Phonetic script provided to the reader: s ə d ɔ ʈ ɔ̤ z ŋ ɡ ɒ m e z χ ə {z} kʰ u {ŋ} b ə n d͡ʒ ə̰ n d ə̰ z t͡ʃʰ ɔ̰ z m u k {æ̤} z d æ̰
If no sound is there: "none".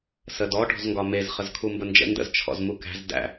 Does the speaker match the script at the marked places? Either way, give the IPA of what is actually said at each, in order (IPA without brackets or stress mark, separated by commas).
z, m, æ̤